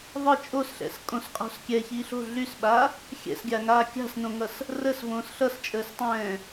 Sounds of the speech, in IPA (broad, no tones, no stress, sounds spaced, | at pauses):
ðˤ ə t͡ʃʼ o s ɬ ɛ̰ s kʼ õ s qʼ o̤ s kʲ ɛ ç i ɬ o̤ ɮ y s ɓ a | xʲ ɛ̰ s ɡʲ a ŋ aː kʲ a̤ s n õ ŋ ʌ s | r ə s v õː s ɬ ʌ s t͡ʃʼ əː s tˤ ɛ̃ː